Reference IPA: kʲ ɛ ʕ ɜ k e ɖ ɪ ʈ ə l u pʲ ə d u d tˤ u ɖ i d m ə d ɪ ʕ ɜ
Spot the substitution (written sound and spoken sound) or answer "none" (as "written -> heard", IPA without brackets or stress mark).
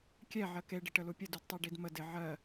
none